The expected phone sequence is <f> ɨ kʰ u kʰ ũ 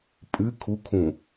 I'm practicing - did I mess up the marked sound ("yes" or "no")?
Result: yes